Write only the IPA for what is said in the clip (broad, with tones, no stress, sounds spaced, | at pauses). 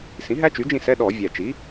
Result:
s ĩ˩˥ ɦ æ˦˥ t͡ʃ y˩˥ d͡ʒ ĩ˦˨ s ɛ˧˥˧ ɗ ɔ˧˩˧ vʲ æ˨˩ t͡ʃ i˩˥